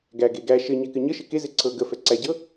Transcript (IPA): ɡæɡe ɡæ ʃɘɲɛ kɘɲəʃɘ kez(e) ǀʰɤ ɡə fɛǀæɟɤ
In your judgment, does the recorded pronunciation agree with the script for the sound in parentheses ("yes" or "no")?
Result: yes